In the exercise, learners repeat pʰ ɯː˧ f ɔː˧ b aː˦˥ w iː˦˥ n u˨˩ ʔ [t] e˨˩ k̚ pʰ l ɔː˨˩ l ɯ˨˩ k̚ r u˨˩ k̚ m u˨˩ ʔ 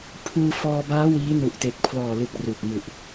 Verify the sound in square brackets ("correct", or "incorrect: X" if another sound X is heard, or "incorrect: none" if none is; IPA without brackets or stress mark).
correct